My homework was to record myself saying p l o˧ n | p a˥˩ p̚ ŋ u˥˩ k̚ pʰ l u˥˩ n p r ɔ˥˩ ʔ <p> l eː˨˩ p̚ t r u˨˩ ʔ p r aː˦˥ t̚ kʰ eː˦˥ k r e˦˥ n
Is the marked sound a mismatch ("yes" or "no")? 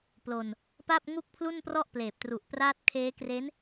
no